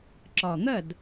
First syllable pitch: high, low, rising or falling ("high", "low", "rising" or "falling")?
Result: low